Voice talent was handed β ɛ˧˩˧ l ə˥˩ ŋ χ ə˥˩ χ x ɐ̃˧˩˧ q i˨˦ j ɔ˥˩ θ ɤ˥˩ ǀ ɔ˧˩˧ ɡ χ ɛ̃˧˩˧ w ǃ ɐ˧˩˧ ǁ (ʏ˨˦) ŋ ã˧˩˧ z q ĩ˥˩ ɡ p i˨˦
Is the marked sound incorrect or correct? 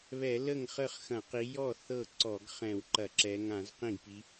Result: incorrect